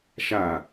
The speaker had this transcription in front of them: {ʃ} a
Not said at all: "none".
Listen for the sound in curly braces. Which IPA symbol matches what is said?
ʃ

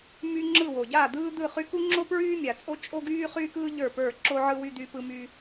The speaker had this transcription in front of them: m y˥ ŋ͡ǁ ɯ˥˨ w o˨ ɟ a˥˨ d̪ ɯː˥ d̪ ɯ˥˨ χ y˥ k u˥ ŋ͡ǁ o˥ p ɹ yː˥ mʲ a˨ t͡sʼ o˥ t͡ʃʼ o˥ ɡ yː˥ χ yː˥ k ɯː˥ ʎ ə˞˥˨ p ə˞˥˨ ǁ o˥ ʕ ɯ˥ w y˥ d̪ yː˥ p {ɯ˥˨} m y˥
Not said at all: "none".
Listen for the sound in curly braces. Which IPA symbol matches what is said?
ɯ˥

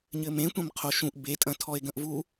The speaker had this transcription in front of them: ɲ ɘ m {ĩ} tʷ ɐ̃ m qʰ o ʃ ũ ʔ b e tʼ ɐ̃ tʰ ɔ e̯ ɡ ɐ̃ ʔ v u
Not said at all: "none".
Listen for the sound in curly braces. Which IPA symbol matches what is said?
ẽ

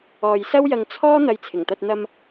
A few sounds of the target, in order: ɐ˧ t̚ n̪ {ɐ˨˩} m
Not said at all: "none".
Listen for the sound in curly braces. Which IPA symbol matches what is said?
ɐ˧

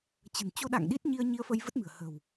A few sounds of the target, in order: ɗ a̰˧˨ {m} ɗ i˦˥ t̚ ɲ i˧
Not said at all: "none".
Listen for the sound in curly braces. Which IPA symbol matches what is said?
ŋ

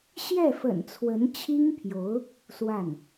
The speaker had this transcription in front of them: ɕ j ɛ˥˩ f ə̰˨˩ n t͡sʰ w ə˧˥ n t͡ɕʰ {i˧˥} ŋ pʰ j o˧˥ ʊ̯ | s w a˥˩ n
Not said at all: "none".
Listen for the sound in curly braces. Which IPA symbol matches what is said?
i˥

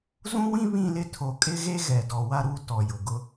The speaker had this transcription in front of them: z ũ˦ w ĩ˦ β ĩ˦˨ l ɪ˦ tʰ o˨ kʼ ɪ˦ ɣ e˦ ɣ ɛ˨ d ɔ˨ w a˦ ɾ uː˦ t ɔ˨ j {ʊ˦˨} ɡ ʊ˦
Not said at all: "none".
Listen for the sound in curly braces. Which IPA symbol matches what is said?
ʊ˨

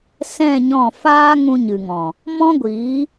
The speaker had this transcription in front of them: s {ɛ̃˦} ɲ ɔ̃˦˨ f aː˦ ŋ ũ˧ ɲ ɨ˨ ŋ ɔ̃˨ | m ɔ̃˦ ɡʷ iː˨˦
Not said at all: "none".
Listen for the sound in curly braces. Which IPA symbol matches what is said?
ɛ̃˦˨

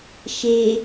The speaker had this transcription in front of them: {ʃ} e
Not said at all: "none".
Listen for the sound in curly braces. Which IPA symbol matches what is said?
ʃ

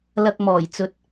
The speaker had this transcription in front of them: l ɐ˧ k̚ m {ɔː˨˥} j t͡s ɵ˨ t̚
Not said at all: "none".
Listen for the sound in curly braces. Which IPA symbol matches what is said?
ɔː˨˩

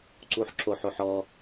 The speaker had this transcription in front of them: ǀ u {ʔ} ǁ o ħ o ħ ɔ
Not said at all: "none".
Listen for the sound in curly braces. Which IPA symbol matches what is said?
ħ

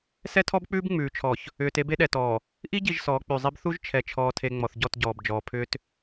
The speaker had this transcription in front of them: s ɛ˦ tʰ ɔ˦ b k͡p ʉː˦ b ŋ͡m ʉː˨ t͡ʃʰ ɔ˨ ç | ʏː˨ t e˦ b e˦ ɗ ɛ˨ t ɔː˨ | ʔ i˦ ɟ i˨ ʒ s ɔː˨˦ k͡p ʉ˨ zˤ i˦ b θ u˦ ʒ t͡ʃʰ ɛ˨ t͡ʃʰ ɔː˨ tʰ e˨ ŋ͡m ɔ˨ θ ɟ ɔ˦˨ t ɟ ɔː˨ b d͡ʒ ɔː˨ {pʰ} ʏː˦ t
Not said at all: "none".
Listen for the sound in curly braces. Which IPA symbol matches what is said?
pʰ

